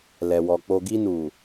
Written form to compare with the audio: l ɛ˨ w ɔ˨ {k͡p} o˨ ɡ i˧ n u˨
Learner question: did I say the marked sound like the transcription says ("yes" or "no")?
yes